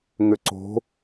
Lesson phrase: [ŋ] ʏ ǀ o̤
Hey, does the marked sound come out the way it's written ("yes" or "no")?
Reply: yes